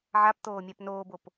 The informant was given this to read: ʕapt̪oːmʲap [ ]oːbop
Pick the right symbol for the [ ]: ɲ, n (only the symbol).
n